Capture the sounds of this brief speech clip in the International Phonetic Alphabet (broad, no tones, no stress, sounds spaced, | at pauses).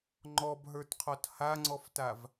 ŋ͡ǃ ɔ b ɦ ə˞ t qʰ ɔ t h a ŋ͡ǀ ɔ f t a v